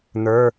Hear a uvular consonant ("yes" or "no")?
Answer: no